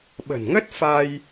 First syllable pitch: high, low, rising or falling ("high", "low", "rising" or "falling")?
low